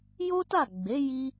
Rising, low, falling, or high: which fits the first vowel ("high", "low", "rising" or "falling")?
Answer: high